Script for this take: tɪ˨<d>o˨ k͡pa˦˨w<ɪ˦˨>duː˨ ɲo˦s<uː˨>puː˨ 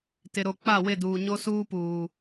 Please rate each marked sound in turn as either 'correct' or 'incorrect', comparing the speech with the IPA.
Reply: incorrect: ɾ, correct, incorrect: uː˦

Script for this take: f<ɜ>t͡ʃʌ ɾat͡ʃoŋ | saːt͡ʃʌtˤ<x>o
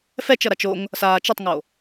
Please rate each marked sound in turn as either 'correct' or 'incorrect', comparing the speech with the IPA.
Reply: incorrect: ɛ, incorrect: ŋ

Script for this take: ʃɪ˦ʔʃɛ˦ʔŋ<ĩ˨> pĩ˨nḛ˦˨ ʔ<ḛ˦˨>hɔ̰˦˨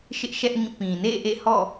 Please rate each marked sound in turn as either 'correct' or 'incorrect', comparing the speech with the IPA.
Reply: incorrect: ĩ˦˨, correct

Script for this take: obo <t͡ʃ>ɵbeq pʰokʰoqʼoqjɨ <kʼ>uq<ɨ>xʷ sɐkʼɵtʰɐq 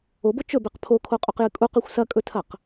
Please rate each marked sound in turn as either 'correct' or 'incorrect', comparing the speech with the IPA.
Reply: correct, correct, correct

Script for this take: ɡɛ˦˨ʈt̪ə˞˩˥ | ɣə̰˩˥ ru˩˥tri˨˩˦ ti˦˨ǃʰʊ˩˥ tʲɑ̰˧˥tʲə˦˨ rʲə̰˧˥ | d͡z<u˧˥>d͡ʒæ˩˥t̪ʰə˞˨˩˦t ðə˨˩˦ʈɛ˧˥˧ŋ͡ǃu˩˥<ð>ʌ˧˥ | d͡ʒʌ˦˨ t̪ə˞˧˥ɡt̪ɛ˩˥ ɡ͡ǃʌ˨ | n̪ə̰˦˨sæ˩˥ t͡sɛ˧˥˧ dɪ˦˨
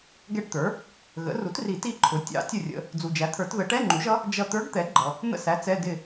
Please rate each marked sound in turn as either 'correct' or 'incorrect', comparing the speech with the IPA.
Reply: incorrect: u˨, incorrect: ʒ

